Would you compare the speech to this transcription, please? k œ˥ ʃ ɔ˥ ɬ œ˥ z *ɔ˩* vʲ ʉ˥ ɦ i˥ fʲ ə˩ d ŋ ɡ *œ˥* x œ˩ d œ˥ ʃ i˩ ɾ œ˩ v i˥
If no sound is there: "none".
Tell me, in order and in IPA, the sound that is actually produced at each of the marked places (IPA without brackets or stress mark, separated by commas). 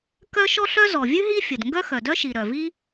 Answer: ɔ˩, œ˥